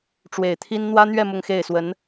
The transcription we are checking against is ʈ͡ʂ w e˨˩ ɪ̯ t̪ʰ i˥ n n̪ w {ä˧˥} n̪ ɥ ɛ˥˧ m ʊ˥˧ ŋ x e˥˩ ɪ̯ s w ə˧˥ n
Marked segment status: incorrect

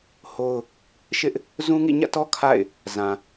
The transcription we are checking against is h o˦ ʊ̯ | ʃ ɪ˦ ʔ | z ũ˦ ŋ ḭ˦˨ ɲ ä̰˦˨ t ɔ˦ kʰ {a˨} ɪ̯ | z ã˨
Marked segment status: incorrect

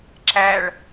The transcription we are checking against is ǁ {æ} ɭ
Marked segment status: correct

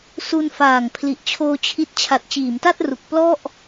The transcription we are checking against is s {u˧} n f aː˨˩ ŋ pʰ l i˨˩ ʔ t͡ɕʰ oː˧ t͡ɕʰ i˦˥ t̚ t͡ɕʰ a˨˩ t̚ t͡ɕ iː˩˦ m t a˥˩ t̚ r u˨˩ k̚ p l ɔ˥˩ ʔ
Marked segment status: correct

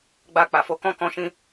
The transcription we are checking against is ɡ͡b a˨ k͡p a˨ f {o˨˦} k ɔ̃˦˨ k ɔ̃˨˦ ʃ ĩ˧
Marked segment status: correct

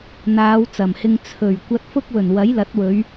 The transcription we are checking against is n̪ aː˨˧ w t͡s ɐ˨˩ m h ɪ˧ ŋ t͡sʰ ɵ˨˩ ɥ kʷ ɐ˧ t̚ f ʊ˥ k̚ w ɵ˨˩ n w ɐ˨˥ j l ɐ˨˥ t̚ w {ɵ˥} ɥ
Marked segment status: incorrect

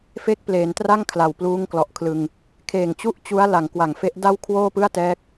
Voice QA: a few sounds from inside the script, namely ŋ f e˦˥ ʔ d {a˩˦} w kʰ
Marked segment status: incorrect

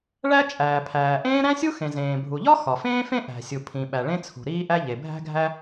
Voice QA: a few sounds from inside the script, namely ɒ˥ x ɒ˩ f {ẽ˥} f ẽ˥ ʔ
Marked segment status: incorrect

